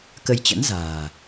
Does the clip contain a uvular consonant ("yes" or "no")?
no